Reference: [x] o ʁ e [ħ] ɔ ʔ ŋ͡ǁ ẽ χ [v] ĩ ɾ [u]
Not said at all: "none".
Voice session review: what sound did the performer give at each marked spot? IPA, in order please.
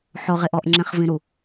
ħ, ʔ, v, u

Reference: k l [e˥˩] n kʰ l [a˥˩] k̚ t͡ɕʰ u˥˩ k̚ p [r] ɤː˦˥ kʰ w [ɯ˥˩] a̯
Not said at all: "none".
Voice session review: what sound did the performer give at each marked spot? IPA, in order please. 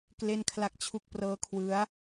e˥˩, a˥˩, r, ɯ˦˥

